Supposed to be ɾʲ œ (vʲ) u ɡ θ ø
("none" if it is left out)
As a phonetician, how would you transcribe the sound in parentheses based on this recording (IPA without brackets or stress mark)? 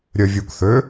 vʲ